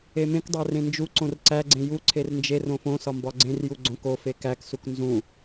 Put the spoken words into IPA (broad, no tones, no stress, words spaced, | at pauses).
emẽkdˤæ rẽnd͡ʒuǀõr ǀæɡ͡ǀẽ juǀʰer nd͡ʒer õfõsɒ mbɒɡ͡ǀẽrju ɡ͡ǀõk o fekæksuk nzũ